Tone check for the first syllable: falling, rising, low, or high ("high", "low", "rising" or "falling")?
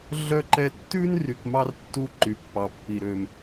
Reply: high